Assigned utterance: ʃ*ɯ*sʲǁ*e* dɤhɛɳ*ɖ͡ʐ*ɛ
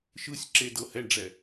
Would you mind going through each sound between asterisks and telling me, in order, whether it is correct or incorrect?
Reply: correct, correct, correct

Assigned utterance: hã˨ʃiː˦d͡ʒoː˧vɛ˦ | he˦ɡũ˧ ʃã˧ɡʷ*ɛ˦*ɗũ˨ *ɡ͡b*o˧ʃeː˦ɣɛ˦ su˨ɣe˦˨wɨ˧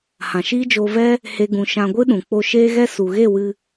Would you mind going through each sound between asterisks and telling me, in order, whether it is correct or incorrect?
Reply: incorrect: ɨ˦, incorrect: k͡p

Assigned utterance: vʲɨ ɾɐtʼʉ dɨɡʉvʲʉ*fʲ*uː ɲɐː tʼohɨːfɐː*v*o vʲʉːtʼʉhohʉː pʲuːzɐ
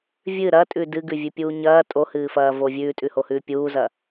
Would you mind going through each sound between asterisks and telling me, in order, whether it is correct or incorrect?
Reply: incorrect: pʲ, correct

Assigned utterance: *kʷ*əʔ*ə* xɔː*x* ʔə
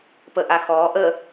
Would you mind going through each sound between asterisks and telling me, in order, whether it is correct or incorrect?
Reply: incorrect: p, incorrect: a, incorrect: none

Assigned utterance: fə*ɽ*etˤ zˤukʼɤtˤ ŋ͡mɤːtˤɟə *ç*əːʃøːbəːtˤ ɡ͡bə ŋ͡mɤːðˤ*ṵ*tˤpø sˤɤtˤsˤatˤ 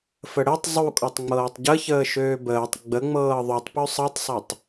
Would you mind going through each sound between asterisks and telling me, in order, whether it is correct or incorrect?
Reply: correct, correct, incorrect: u

